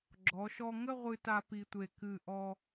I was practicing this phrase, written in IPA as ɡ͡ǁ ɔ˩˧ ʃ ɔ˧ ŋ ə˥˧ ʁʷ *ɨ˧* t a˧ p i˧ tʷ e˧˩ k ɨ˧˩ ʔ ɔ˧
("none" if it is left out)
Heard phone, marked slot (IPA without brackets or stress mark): ɨ˧